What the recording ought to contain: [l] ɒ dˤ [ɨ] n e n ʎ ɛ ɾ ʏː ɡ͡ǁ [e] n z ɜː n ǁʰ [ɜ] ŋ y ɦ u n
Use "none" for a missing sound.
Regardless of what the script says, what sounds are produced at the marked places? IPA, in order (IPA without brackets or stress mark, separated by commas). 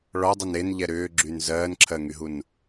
ɭ, e, y, ɜ